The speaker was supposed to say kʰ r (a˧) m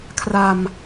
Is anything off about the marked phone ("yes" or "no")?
no